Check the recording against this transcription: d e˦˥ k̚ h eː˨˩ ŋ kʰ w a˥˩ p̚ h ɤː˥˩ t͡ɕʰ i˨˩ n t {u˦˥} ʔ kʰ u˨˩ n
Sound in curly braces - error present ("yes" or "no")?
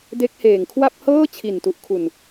yes